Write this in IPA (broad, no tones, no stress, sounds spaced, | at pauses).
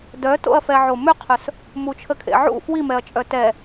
d œ t o̰ ɐ̯ f ɛ ʕ o m ʏ qʰ œ s | m u t͡ʃʰ ə kʰ ḛ ʕ ṵ f w i m ɛ ɐ̯ t͡ʃʼ œ t ɛ